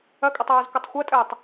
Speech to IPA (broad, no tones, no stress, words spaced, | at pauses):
ɐkʼətˤaːzkʷɐtˤ xʷɐtʼɘːtˤ